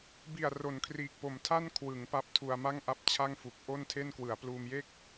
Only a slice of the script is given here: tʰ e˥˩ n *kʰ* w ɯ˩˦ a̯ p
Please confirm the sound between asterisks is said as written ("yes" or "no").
no